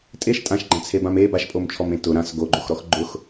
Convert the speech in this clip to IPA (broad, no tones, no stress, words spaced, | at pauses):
tʼeʃ tʼãʃɡ͡ǃãt͡sʰebãm e baʃpʼomt͡ʃʰɔmẽ tʊ ɾãs ɡoɡ͡ǃoxɾɔx ɡ͡ǃʊx